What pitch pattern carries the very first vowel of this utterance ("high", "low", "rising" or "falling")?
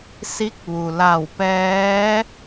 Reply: rising